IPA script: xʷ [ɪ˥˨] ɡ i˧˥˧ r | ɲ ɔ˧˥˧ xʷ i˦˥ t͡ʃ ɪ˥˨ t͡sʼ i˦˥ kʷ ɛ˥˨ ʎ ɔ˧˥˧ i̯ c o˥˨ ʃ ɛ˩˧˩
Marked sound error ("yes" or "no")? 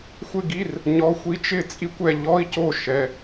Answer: no